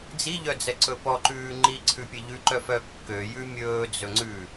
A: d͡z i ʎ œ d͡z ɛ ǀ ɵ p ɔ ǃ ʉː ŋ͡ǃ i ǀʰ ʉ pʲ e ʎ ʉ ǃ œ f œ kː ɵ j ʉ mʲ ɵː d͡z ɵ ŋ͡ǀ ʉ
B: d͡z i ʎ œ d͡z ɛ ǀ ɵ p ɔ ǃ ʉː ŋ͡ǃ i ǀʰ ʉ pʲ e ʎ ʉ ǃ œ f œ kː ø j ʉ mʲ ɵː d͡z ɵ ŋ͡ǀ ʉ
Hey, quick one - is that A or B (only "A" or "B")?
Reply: B